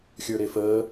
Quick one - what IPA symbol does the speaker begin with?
xʲ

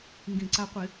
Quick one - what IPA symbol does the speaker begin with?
ŋ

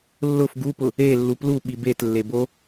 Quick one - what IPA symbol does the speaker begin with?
lː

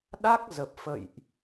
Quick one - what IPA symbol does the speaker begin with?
ɗ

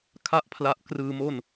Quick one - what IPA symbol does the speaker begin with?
kʰ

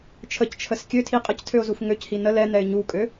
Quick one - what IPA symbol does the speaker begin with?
t͡ʃʰ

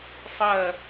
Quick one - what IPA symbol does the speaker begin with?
sˤ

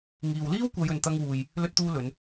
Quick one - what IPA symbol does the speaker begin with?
ŋ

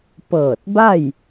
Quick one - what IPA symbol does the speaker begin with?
p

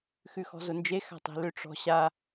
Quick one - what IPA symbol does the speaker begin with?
x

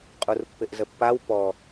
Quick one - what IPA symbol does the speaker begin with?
qʼ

